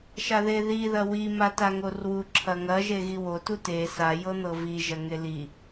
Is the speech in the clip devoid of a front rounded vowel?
yes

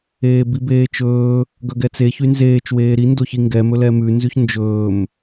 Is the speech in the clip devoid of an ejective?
yes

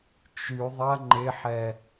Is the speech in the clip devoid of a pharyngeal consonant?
no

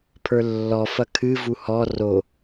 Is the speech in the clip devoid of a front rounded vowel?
yes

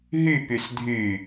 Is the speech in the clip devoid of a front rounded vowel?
no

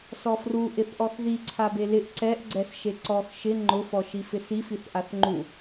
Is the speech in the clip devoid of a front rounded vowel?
yes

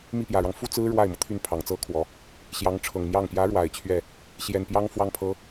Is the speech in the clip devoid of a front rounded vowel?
no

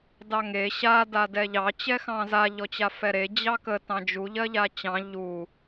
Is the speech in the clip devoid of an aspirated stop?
yes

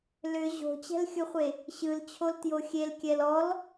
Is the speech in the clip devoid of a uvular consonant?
no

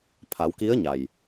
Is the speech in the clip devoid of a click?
yes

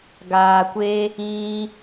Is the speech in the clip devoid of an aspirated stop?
yes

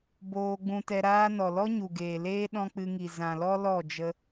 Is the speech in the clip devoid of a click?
yes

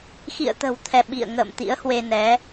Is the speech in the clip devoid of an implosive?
no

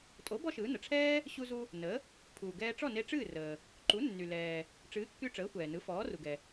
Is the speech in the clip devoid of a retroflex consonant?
no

